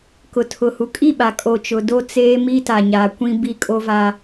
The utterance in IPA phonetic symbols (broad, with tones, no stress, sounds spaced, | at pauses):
k ʊ˨ tʰ ʊ˨ h u˨ kʼ i˦˨ ɓ a˨ kʼ o˨ t͡ʃ ʊ˨ d o˦ t͡s eː˦ m i˦ t a˨ ɲ aː˨ kʷ ĩ˦ b i˦ kʼ o˦ v a˦